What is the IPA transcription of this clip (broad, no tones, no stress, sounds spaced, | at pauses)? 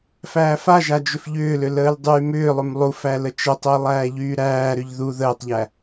f æː f a ʒ a d͡ʒ ʏ f ʎ ʏː l ʏ l əː l dˤ yː m ʏː lˠ ʏ m lˠ u f æ l ə t͡ʃ ə tˤ əː lˠ æː ʎ yː ɾ æː ɾ ʏ ʎ ð u ð əː tˤ ʎ æ